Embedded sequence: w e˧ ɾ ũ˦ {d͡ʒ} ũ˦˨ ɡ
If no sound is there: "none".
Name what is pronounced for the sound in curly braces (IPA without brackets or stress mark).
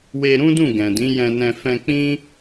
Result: d